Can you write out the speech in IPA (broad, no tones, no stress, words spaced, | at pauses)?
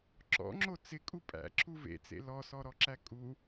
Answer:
ǁɔ̰ŋ͡ǁo t͡sɪkʼu pʼæ̰ǁʰu vḛt͡sḛ lɔsɔɾɔǁæ kʼu